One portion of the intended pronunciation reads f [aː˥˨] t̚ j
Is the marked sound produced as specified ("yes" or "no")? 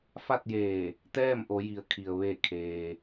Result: no